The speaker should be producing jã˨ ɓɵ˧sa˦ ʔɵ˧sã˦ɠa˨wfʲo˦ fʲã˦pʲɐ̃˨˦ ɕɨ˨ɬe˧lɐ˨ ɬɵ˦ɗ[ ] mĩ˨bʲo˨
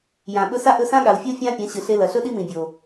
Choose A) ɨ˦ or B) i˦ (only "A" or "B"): B